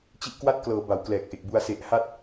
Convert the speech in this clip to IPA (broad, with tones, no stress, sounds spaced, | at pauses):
t͡ɕ i˦˥ ʔ k w a˥˩ t̚ k l ɤː˩˦ b a˩˦ w k l ɛː˨˩ k̚ ʔ e˨˩ k̚ b u˧ a̯ s e˨˩ ʔ h a˦˥ t̚